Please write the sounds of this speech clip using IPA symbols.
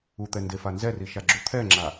u t̪ ɛ n d e f a n z ɛ r i ʃ a ɡ͡ǁ u t̪ʰ ɛ ŋ͡ǁ a

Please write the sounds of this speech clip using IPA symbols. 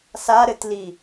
s a ɾ ɘ t l i

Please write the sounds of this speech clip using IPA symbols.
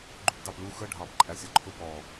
ɡ͡ǃ u p d ɑ p l u x ə ɖʱ ɑ p ǃʼ æ sʲ ɒ ǃʰ ʊ p ɔ

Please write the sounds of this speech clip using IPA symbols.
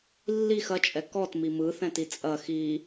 lː i x ɐ t͡ʃʼ ɛ k ɔ t m i m ɯ θ ɛ̃ t i t͡sʼ ɐ x i

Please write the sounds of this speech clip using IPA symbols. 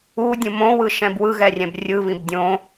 u dʲ ũ m õ w ɯ ʃ ɛ̃ b w ɯ ɣ ɛ rʲ ɛ̃ b rʲ ɯ β ĩ b dʲ õ

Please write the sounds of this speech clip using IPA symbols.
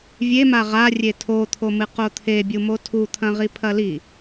vʲ e m a ʁ a rʲ e tʰ o t̪ʰ o m ɨ q o t̪ʰ e bʲ u m o tʰ u t̪ʰ ɐ̃ ʁ i pʰ ɐ l i

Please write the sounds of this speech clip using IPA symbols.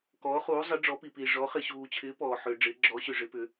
k ɔː˨˥ χ uː˨˥ zˤ ɪ˨˥ ɖ͡ʐ ɔ˨˥ p i˨ p iː˨ ʐ ɔ˨˥ χ ɪ˨ ɕ uː˨ t͡ɕʰ ɪː˨˥ p ɔː˨ ħ ʏː˨ ɖ͡ʐ ɪː˨˥ ɡ͡ǁ ɔ˨˥ ɕ ʏ˨ ʐ ɪ˨˥ p ʏ˨˥

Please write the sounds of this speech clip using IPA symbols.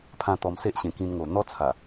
pʰ ã˧ t̪ ɔ˨˩ m s e˦ ʔ ɕ ẽ˨˩ k ĩ˧ n ŋ o˨˩ n̪ ɔ˦ t͡sʰ a˨˩

